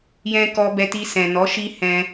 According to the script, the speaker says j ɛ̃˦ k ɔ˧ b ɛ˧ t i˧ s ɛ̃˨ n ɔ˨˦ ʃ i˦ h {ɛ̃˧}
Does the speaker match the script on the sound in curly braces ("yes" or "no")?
yes